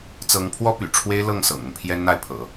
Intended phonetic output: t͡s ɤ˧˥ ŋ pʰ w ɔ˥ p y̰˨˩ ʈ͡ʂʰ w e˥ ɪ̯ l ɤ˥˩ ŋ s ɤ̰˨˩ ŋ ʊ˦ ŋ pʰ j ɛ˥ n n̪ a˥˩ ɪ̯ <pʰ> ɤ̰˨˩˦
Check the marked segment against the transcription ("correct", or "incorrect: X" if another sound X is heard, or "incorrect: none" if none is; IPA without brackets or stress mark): correct